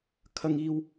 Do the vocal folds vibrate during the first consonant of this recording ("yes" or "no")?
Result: no